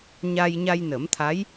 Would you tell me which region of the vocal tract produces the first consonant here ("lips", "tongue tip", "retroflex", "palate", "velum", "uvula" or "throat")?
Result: palate